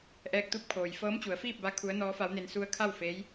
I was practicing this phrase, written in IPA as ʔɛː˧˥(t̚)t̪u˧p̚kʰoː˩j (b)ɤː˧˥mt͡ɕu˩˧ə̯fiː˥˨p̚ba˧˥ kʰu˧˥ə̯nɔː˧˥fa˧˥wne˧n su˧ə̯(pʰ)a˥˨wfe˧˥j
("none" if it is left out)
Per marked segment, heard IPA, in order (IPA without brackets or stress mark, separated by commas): k̚, f, kʰ